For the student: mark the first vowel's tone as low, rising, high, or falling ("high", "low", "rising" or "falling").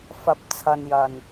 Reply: rising